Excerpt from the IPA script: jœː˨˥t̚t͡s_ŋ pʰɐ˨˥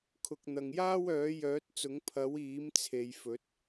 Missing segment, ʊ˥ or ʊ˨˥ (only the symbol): ʊ˨˥